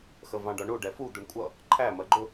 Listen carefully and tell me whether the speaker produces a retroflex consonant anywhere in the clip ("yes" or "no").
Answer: yes